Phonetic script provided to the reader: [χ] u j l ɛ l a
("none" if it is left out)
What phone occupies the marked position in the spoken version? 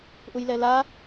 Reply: ʔ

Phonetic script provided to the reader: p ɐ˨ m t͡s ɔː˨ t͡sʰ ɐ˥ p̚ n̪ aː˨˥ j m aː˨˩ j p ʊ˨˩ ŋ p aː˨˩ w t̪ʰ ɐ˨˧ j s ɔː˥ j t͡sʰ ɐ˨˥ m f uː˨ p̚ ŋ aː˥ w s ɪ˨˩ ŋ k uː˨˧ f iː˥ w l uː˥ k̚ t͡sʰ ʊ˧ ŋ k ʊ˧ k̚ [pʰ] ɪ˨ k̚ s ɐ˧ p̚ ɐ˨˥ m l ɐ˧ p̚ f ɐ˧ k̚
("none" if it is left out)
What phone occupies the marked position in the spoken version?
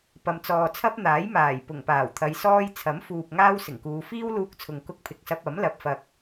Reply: pʰ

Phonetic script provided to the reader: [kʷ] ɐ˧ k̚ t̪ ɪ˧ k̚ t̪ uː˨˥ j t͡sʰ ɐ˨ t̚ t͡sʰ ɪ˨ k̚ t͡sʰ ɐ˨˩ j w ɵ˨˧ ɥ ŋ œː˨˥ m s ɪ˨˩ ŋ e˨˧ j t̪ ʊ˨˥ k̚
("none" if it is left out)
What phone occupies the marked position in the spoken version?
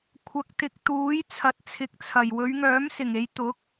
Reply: kʷʰ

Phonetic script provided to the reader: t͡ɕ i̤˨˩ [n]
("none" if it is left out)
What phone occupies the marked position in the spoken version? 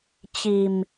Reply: m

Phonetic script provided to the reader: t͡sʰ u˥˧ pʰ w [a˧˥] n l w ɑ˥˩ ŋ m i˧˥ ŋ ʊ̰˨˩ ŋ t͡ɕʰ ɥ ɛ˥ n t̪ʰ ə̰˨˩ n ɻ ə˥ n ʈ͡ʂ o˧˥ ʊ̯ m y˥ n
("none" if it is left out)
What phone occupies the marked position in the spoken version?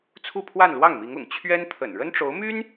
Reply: a˥˧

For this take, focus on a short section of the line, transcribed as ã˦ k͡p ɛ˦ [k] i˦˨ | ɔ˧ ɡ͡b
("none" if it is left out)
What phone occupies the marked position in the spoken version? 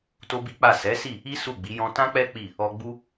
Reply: k͡p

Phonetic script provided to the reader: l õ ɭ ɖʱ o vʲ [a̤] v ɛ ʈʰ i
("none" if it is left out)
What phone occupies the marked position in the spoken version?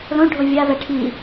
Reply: a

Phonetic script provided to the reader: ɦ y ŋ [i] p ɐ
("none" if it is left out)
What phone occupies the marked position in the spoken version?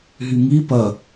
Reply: i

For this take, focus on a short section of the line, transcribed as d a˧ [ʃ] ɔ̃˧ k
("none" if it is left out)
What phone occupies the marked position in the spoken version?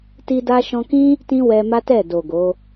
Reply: ʃ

